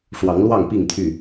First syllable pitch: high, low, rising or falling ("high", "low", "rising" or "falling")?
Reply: rising